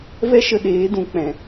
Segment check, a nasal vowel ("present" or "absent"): present